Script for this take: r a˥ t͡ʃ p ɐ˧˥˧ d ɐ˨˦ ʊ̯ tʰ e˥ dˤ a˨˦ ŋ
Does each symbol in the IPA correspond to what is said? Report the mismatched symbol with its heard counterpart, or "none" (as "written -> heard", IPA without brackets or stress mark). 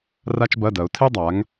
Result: p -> b